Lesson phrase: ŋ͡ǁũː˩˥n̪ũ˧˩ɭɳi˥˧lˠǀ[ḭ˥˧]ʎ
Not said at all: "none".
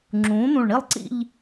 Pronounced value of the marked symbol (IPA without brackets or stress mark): ḭ˥˧